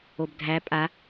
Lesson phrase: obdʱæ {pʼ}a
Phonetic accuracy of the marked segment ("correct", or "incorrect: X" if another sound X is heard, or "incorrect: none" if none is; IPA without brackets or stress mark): correct